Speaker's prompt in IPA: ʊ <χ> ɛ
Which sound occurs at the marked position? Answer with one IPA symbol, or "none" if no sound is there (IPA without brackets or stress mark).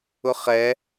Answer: χ